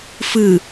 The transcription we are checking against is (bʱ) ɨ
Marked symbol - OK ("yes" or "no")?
no